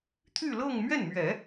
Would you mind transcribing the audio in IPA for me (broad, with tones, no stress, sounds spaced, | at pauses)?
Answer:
t̪ʰ y˥˧ l ɤ˥˧ ŋ m ɥ ɛ˥˩ n m ɥ ɛ˨˩˦